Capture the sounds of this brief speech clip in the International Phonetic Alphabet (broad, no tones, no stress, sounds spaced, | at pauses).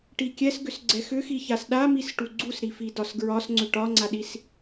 ʈ i kʲ ɛ s ɡ ʏ s ɡ͡ǀ ɛ x ʏ x i ç a s ɗ a m i s ʈ u ɡ͡ǀ u s ɾ i f i d ɒ s ɡ ɹ ɒ s ŋ͡ǀ ʏ ʈ ɒ ŋ͡ǀ a ɗ i s